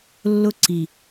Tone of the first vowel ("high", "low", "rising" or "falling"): high